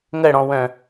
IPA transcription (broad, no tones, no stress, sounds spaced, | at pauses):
ŋ ə ɽ ɔ̃ w œ̃